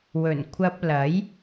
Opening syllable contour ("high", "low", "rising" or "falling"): low